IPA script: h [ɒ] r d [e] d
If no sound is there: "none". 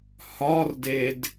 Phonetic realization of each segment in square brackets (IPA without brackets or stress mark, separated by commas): ɒ, e